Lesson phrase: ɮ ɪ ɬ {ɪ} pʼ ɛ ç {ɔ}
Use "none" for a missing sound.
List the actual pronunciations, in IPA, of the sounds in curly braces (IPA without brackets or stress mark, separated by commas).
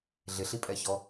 i, ɔ